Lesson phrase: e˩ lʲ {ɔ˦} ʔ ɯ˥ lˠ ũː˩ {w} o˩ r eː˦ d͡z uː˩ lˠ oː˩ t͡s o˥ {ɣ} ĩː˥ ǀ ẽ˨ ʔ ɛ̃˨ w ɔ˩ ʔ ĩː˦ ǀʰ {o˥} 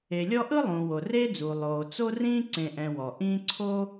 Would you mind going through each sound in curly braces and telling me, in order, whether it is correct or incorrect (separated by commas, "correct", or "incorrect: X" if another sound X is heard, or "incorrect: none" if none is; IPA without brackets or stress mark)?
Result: correct, correct, incorrect: r, correct